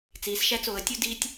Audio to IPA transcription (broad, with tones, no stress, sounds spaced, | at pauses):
t͡s iː˩ s ʃ æ˧ t͡s oː˩ ə̯ tʲ u˧ d i˧ tʲ